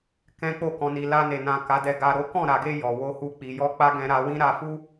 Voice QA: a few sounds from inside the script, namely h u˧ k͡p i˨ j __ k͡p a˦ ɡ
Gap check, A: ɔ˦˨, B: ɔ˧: B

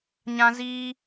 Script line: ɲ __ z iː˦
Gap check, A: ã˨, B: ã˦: B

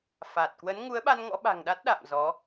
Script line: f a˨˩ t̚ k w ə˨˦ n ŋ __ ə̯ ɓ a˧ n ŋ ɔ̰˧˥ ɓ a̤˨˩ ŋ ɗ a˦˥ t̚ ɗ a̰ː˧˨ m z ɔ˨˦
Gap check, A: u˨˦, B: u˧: A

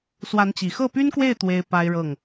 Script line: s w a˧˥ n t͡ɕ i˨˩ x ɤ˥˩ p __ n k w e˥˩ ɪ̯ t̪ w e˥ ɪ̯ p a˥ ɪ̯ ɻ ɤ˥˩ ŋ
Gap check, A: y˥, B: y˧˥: A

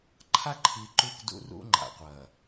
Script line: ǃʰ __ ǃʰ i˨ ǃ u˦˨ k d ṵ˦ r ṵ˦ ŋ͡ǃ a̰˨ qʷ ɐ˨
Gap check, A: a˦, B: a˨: A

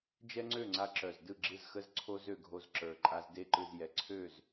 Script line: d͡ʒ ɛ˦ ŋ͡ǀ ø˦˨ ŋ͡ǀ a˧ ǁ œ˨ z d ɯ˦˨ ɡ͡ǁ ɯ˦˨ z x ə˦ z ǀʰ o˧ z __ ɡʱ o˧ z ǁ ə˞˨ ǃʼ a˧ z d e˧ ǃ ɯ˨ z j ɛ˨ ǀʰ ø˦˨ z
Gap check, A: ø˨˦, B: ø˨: B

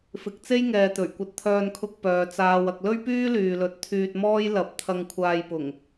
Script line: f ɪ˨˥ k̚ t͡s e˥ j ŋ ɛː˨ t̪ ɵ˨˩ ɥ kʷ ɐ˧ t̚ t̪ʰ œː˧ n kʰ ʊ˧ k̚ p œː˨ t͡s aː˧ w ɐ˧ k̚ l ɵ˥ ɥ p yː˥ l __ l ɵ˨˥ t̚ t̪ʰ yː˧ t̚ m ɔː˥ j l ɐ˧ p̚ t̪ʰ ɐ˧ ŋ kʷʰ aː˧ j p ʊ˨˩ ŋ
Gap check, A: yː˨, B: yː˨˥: A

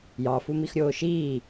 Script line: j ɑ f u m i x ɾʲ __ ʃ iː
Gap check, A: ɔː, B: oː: B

